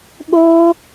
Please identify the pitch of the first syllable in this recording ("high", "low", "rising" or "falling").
high